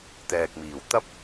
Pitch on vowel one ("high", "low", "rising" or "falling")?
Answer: low